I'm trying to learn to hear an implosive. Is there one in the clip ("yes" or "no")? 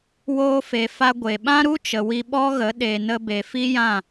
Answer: yes